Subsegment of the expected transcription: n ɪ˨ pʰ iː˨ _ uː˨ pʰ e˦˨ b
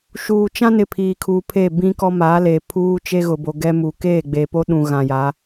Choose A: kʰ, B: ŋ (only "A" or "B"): A